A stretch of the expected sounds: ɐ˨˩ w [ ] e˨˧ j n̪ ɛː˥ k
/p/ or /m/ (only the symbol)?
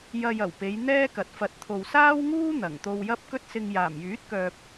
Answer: p